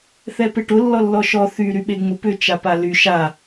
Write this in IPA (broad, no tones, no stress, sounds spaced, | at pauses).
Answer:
θ ɛ p e ʈ ʊ lː ɔ lː ɔ ʃ ɔ θ y ɾ y ɓ e ŋ͡m ʊ p ʏ t͡ʃ a p a l y ʃ a